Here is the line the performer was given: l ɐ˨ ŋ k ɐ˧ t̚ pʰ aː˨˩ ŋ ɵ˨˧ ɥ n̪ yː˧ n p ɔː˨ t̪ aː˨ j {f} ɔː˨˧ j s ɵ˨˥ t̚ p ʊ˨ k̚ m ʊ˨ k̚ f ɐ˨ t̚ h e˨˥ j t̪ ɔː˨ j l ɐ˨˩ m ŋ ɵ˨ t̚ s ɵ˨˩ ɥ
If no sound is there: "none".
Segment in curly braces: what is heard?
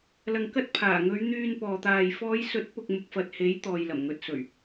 f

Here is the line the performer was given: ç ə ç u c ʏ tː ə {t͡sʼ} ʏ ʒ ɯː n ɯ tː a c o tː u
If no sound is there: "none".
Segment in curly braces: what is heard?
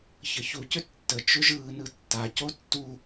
t͡ʃ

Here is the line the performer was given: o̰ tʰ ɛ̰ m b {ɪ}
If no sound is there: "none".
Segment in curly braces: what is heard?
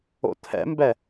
ɛ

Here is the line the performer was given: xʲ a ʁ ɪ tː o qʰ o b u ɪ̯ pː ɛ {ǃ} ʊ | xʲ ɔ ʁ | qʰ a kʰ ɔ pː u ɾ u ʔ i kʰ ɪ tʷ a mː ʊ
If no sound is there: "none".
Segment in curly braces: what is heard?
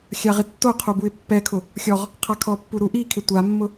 kʰ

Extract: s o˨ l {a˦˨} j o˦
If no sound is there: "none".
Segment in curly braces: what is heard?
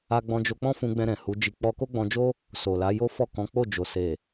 a˨˦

